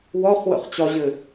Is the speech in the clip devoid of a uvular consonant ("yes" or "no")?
no